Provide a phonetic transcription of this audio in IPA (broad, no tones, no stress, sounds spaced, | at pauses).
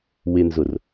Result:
w ɪ n z ʊ r